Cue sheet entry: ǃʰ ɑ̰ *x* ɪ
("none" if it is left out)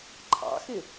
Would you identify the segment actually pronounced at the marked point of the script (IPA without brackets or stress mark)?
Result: x